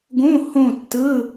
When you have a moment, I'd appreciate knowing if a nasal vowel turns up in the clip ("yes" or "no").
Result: yes